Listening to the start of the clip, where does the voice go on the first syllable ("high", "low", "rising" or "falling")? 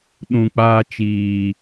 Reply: low